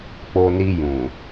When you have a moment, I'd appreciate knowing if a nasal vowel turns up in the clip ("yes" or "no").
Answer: yes